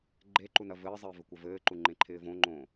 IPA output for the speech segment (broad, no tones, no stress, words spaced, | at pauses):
ɡ͡ǃeǃu nɐvɘːzˤɘː vɘkʷɐvɘːǃu ŋ͡ǃẽǃʰɪːvõŋ͡ǃõː